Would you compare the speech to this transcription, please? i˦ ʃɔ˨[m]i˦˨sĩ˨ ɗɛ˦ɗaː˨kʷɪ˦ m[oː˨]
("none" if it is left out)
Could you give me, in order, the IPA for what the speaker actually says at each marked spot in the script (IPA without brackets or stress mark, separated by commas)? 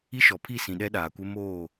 pʰ, oː˦˨